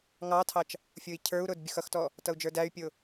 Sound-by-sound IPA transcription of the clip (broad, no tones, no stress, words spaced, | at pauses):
ŋɑtʰɑt͡ʃ | fʲʊi̯cʰə˞u̯ɾʊd bʲʊxʌxtɔ | tʌu̯d͡ʒə˞dæy̯pʲʊ